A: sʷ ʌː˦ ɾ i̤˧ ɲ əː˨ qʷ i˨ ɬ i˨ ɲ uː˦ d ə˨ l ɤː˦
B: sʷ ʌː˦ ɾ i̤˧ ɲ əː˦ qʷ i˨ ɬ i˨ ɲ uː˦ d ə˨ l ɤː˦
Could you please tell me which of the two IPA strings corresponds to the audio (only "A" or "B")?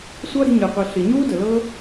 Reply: A